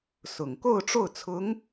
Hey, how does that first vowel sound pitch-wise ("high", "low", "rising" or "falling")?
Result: low